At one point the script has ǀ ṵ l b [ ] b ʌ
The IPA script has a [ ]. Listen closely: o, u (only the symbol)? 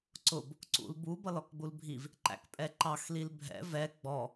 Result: u